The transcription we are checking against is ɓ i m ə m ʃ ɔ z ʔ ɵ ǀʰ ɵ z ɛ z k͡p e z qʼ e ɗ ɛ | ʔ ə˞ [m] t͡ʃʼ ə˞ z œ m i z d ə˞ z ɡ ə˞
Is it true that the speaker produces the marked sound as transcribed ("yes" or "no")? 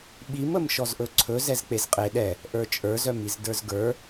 no